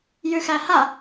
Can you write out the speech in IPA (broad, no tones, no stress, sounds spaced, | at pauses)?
j ʉ x æ h a